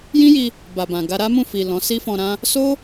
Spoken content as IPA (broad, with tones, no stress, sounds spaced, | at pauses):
j ĩ˦ j i˧ | b a˨ b ã˨ ɡ a˧ ɾ a˦ m ũ˦˨ f i˨ l ɔ̃˨˦ s i˦ f ɔ̃˧ ɾ ã˦ | s o˦